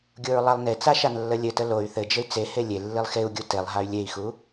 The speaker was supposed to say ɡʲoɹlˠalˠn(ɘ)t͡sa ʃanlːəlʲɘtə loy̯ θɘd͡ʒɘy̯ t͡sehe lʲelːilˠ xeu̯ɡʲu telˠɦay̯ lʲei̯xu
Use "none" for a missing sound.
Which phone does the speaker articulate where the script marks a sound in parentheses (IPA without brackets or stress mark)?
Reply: e